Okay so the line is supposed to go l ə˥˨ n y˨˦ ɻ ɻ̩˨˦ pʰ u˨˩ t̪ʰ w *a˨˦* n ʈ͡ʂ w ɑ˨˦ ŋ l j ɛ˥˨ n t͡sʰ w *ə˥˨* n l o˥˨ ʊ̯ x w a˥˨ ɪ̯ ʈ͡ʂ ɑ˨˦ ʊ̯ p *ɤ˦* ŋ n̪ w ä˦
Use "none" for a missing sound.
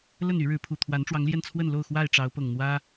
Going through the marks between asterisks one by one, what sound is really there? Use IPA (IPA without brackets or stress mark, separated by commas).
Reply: a˨˦, ə˥˨, ɤ˨˩